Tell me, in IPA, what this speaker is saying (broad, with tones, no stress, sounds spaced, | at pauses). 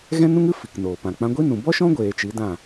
ɣ ɛ̃˦ n ũ˦ ŋ ɨ˦ f i˨ k n oː˨ p ã˨ k͡p ã˧ ɡʷ i˦ n ũ˨ b ɔ˦ ʃ ɔ̃˦ ɡʷ eː˨ t͡ʃ i˨˦ d ã˦˨